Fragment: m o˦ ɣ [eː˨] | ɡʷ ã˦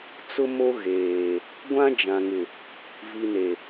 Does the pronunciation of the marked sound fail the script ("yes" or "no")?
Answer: no